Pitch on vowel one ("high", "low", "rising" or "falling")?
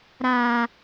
low